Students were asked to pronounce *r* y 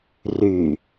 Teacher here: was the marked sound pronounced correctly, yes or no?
yes